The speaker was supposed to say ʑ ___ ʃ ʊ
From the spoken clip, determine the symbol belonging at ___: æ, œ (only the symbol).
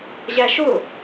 æ